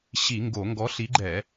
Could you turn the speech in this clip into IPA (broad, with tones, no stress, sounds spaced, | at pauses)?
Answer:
ɕ i˧˩˧ ŋ ɡ o˧˩˧ ŋ ɡ ɔ˨˥ ɬ i˨˥ ɡ͡ǃ ɛ˧˩˧